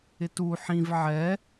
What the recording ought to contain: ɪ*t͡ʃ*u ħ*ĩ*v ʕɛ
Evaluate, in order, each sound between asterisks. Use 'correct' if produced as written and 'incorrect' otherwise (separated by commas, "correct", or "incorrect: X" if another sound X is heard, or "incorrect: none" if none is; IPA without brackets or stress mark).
incorrect: t, correct